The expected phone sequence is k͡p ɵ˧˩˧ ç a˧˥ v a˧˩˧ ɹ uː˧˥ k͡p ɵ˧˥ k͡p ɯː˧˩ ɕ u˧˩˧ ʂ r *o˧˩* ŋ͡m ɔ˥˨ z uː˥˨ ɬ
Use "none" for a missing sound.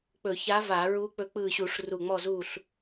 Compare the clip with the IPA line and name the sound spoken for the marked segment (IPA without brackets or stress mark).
u˧˩